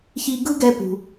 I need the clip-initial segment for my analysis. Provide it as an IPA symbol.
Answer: ç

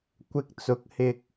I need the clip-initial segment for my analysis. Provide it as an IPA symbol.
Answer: kʷ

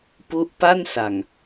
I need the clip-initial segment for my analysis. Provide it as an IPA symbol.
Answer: p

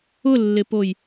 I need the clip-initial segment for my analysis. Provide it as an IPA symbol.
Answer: ʊ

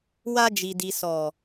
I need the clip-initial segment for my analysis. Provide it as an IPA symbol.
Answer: w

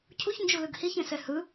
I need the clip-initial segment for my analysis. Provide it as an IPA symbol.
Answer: cʰ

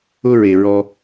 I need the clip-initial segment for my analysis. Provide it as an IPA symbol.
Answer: ʊ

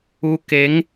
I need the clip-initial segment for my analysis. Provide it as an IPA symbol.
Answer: u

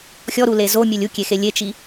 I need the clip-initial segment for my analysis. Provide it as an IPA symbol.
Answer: xʲ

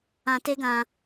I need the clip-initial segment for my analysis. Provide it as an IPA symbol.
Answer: ã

